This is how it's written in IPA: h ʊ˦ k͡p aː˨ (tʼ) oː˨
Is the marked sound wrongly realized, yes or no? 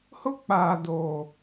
yes